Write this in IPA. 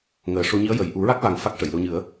ŋ əː˨˩ ʂ o˧ ɲ i˧˥ ə̯ j ə˨˩ j ʔ u˨˩˦ ɹ a˦˥ k̚ v a˨˩ ŋ f a˦˥ k̚ ʂ ə˨˩˨ j l o˧ ɲ ɨ˨˩˦ ə̯

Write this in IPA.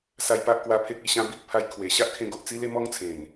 s a˧ j p a˦ ʔ k w a˧ pʰ e˦ k̚ i˥˧ ɕ ã˦ b i˦ k̚ pʰ a˧ j kʰ w e˨˩ ɕ a˦ ʔ kʰ ẽ˧ ɡ o˨ ʔ t͡s i˦ l e˦ m ɔ˦ ŋ t͡sʰ ẽ˨˩ n

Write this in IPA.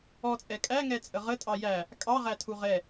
ɔ t͡sʼ ɛ kʼ æ ŋ ɛ t͡sʼ ə ʁ ə tʼ ɑ j æ | kʼ ɑ ʁ æ tʰ u ʁ ɛ

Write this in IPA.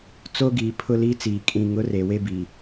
t͡s o˦ ɡ iː˨ pʰ ʊ˦ l i˦ t͡s iː˨ kʼ ĩ˨ ŋ ʊ˨˦ r e˨ w e˦ b i˨

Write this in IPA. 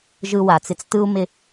ʒ ɯ˦ w a˨ t͡s ɪ˦ t͡s t ɯ˦ u̯ m ɪ˦

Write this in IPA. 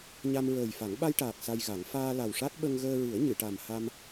ɲ a˧ m ɹ əː˨˩ j f a˨˩˦ ŋ ɓ a˧ j ʈ aː˨˩ k̚ s a˧ j ɣ a˨˩˦ ŋ f aː˧ l a˨˩ w ʂ a˦˥ t̚ ɓ ə˧ ŋ ɣ əː˧ ɹ ɨ˨˩˦ ə̯ ɲ ɨ˨˩˨ ʈ a˨˩ m h a˧ m

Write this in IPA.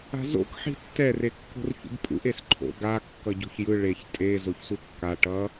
a̤ z o̰ k ħ i̤ tː ɛ r e kː o̤ r ç ṵ b pʼ ṵ ʔ e s ǃʰ o̰ ɡ a kː ʌ ɟ o̤ ç j ɯ ɭ e ç tʼ e z o ç s u kː a ʈ ʌ

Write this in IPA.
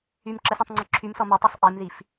y m ǁ ə s ɔ̃ tˤ ŋ͡ǀ ɔ ǁʰ y m s ɔ m ə tˤ u sˤ ʔ e m ð i f

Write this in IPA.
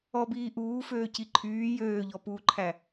ɔ b iː ʔ uː f øː c i ǃʰ yː j øː ʎ ɔ p uː ǃʰ æ

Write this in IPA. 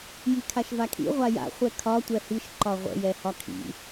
j i kʰ a ʃ v a kʰ ḭ ʁʷ a j a̰ χʷ ɛ kʰ ɒ tʷ ɛ h i ʃ ǃ ɒ ʁʷ ə̰ j ɛ h ɒ kʰ ḭ

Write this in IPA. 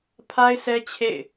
pʰ a˦ ɪ̯ sʰ ɛ˦ t͡ɕʰ ḛ˦˨ ɪ̯

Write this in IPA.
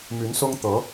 m y˧˥ n s ʊ˥ ŋ t̪ ɤ˧˥

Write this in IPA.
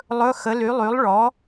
lˠ ɵ˧˥˧ x ə˩˥ l y˩˥ lˠ y˩˥ lˠ ɭ ɔ˩˥

